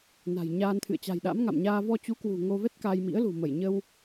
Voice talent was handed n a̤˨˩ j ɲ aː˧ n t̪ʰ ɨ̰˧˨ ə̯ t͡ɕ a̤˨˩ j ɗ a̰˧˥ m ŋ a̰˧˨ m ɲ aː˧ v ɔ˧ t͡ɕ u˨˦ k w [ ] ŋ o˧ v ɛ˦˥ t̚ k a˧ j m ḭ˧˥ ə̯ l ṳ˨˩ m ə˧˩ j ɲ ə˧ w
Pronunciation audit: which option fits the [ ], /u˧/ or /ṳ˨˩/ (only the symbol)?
ṳ˨˩